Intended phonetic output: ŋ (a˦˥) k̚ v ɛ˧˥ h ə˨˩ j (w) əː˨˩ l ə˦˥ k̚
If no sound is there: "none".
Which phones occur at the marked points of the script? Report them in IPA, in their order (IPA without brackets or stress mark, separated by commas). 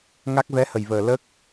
a˦˥, v